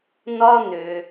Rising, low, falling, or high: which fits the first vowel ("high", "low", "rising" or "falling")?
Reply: high